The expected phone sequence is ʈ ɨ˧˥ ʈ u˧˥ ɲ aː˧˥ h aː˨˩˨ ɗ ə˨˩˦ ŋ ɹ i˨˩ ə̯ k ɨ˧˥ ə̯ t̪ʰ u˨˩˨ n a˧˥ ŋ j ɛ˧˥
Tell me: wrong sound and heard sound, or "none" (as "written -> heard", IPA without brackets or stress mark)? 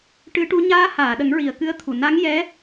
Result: none